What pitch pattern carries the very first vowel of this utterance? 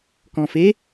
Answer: low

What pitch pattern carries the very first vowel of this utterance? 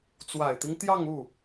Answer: low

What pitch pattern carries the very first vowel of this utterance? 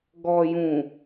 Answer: low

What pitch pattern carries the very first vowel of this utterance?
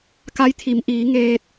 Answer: rising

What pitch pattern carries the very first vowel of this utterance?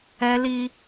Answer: high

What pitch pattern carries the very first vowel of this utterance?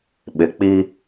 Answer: low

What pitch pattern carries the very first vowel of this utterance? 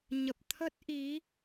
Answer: low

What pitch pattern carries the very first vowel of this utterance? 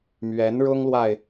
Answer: rising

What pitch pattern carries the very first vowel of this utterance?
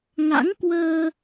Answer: rising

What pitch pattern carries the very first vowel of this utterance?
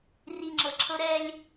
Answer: low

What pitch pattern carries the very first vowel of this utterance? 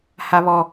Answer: high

